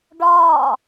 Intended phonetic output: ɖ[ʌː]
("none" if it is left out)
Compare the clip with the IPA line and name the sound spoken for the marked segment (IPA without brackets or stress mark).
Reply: ɒː